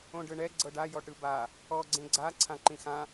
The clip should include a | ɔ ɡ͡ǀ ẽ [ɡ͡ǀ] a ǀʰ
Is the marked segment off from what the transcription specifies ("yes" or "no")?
no